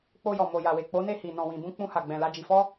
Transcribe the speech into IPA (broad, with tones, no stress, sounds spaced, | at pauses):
k͡p o˧ j ɔ˨ m o˨ j a˨ w e˨ k͡p o˨˦ n e˦˨ h i˨ n ɔ̃˨ w ĩ˨ b ũ˧ k͡p ũ˧ h a˨ ɡ͡b ɛ̃˨ l a˧ d͡ʒ i˨ f ɔ˧